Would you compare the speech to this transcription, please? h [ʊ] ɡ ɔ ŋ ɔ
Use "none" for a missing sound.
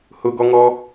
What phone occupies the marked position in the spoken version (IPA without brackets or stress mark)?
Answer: ʊ